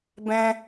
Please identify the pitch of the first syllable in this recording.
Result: high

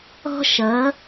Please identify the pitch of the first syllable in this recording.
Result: high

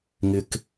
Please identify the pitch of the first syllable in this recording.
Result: high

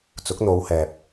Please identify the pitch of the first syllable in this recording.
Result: rising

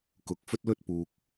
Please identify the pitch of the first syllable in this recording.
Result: rising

